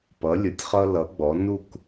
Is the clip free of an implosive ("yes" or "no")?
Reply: yes